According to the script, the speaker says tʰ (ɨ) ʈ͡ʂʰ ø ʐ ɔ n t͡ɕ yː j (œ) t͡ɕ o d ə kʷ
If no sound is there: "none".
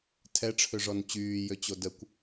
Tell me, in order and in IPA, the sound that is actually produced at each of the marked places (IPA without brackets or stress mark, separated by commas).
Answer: ɛ, ø